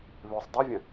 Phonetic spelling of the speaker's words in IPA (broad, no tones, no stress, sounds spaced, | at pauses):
β ø sˤ dˤ i vʲ ɐ̃